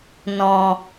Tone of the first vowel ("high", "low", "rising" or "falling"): low